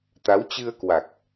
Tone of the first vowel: rising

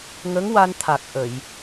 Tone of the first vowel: rising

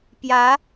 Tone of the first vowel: rising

